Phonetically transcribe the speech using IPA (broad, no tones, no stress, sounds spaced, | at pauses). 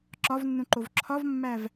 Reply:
ǁ ɒ v nː ũ ǃ o v ǁʰ ɒ v mː æ v